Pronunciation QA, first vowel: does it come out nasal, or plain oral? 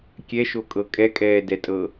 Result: oral